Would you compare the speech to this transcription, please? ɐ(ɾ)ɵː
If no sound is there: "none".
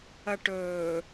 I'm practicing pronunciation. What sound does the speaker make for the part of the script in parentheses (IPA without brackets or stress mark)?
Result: ʈ